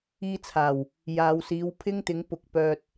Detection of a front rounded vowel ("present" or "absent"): present